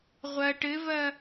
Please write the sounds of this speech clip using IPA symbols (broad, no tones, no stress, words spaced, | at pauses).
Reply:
ʁʷɐ ʈɘvɐ